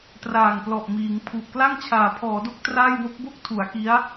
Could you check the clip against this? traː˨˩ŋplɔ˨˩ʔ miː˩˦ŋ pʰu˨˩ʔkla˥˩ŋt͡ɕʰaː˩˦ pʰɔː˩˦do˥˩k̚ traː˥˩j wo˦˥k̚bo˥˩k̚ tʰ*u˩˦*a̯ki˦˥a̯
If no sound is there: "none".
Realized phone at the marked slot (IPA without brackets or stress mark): u˩˦